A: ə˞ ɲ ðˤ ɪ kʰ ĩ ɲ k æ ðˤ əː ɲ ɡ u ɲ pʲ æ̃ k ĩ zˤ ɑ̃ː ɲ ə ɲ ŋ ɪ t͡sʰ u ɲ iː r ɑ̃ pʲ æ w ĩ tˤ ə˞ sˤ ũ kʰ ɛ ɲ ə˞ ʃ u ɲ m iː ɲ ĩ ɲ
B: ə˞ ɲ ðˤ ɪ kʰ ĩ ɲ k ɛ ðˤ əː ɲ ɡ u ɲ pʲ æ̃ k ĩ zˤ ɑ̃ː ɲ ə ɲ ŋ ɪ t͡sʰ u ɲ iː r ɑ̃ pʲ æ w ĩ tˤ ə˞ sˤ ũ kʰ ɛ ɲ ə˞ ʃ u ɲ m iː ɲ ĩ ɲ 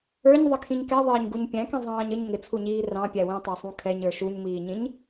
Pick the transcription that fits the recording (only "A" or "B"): B